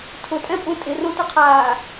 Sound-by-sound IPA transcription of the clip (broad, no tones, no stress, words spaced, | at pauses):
tʰʊtʼɛ̃pʼũ tʼɪrõtʊqʰaː